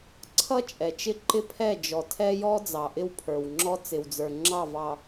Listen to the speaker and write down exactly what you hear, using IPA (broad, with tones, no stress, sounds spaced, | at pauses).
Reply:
ǀʰ ʌ˦ t͡ʃʼ ɛ˨ t͡ʃ ɪ˦ ǃ ɪ˦ pʰ ɛ˦˨ d͡ʒ ɔ˨ tʰ ɛ˦ j ɔ˦ d͡z ɑ˨ ʔ ɪ˦ w pʰ ə˞˨ w ŋ͡ǁ ɔ˦ t͡s ɪ˨ w d͡z ə˞˨ ŋ͡ǁ ɑ˦˨ v ɑ˨